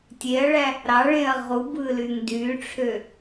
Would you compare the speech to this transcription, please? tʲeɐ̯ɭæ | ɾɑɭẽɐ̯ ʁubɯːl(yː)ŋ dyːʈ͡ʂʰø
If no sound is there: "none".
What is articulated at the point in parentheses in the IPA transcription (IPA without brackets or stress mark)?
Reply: yː